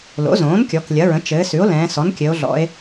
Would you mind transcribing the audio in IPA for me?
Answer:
lo̰˩˥zõː˩˥nkʲɔ˩˧k lʲɐ˩˥ɹə̃˩˥ t͡ʃɘː˩˧ sʉ˩˥o̯lɛ̃ː˩˧ sɔ˩˥nkʲɘ˩˧o̯ ɮɔ̰˩˧e̯

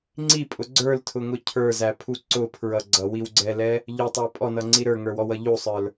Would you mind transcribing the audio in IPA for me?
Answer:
ŋ͡ǀipʼʊ ɡ͡ǀə˞ltʰʊŋʊ cʰə˞zæpʰu ǀʊpʰɹʌ ɡ͡ǀʌwiwɡ͡ǀɛlɛ | ʎʊtˤæ pʼɔnʌŋ͡ǀi ɾə˞ŋə˞wɔwʌ ʎusˤə˞l

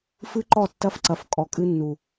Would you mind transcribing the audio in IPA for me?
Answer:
fɨ˦ǃɔ˦˨ tːɐ˦fǀɐ˨f kʼɔ˨kʼɨ˦nːu˨

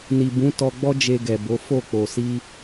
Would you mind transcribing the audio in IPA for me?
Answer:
ni˨bũ˨˦tɔ˧ɡ͡bɔ˦ d͡ʒe˧ɡɛ˨bo˨˦ fo˦˨k͡po˨si˧

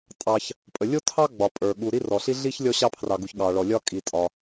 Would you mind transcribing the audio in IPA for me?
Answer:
tʼɑ˩ç | pʼə˩lʲo˥tʰɑ˥ ɡ͡bɒ˩ pʼə˞˩ ɠu˩ɾi˥rɔ˩ɬi˥ ɮi˥ç lʲɔ˥ɕɑ˥pʰrɑ˩ɡu˩ç ɠɑ˩ɭɔ˩lʲɒ˥ kʼi˩tʼɒ˩

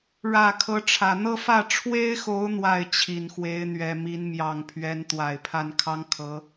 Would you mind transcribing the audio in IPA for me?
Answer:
ɻä˨˩ kʰɤ˧˥ʈ͡ʂʰä˨˩ n̪ɤ˥˧fä˥˩ ʈ͡ʂʰwe˥ɪ̯xo˧˥ʊ̯ n̪wa˥˩ɪ̯t͡ɕʰi˨˩nxwe˧˥ɪ̯ n̪ɥɛ˨˩mi˧˥n mjɑ˨˩ŋ pʰɥɛ˧˥nt̪wa˨˩ɪ̯pʰa˥˩n kʰɑ˥ŋkʰɤ˧˥

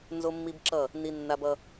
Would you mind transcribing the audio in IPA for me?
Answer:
nzo˦mːi˦bǁʌ˦˨ | ni˦nːa˦bʌ˦

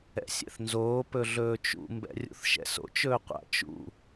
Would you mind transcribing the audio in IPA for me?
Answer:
ɛ̰sʲɛ̰θnzoː pɵɮɵːt͡ʃṵ mbɛ̰rʲṵθʃɛ̰so̰t͡ʃ ɵːqʷa̰ t͡ʃṵ

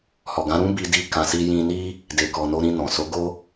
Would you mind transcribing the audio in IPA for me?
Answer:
hɔ˨ɡã˨˦ɾũ˦ bi˧di˧ kã˨si˧jĩ˧ ni˦ | de˨kɔ˨no˧ɾĩ˧ nɔ̃˨ so˨˦ɡo˦

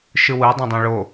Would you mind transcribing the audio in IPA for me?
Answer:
ʃɯwɯ dˤõdˤãɭo

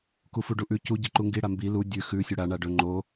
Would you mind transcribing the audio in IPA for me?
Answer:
kufuɖuʔʉ cu ɟiǃuŋɡi ɽambi lu dʲʉ xʉ sʲɵɽa ɳaɖɵ ŋ͡ǃo

